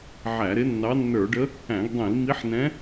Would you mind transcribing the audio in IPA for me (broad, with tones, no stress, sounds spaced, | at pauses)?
ʕ æ˧˩˧ ɾ ɪ˧˥ nː ɑ˧˥ nː ə˞˧˩˧ ɖ ə˧˥ | æ̃˧˩˧ ɡ dˤ ĩ˧˩˧ l m i˧˥ ħ n ɛ̃˧˥